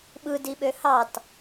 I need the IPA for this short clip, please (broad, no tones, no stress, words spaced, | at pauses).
ɓɯdiɓø hɑt